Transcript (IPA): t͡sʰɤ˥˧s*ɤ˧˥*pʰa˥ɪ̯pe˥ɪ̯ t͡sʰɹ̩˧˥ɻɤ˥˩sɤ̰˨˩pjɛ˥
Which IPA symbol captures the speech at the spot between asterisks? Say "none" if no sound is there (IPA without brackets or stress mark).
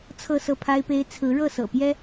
ɤ˥˩